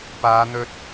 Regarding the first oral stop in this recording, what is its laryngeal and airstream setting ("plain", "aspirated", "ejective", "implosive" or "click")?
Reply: plain